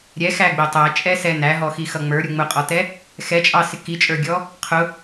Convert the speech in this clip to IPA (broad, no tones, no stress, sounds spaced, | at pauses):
ɾʲ ɛ x æ ɡ͡b ɪ tˤ æ t͡ʃʼ ɛ s ɛ n æ ɦ ɔ x i x ʌ ŋ͡m ə˞ ɾʲ u ŋ͡m ʊ qʼ ɔ t ɛ | x ɛ t͡ʃʼ ɑ s ɪ k i t͡ʃʼ ə˞ ɡʲ ɔ | qʰ ʊ